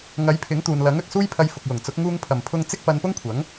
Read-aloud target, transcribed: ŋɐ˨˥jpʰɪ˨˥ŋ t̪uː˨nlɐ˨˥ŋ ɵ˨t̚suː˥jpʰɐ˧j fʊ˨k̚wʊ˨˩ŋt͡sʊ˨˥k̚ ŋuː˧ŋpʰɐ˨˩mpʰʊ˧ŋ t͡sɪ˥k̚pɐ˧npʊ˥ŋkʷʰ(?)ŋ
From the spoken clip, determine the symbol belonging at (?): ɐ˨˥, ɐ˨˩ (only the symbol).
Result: ɐ˨˥